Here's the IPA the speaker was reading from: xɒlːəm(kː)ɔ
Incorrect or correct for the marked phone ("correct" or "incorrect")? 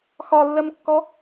correct